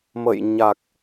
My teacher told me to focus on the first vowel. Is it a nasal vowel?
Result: no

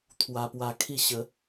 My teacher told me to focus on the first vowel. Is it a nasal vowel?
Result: no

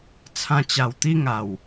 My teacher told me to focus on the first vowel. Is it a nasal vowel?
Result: yes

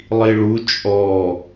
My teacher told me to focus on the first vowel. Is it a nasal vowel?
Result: no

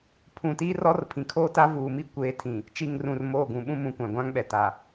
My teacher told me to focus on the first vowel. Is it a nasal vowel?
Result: yes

